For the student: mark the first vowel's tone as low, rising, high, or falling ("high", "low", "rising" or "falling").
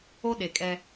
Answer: high